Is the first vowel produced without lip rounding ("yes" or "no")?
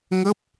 yes